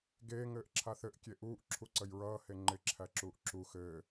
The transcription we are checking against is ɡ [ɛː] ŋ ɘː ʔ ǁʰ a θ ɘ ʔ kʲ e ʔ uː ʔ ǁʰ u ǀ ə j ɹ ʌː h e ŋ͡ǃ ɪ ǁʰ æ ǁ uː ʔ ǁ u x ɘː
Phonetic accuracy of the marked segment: incorrect: eː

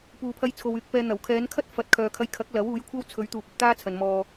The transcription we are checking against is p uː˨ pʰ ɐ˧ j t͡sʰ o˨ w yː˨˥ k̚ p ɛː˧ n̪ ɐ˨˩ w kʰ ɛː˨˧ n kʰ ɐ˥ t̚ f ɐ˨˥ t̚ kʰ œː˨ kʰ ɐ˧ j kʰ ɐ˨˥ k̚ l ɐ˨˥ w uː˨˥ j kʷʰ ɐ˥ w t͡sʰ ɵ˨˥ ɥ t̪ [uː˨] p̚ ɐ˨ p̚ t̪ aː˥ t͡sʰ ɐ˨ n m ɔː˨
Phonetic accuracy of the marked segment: correct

